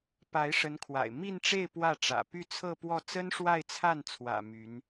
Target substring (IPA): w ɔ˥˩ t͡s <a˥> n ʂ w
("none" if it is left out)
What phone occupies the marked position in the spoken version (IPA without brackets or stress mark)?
ə˥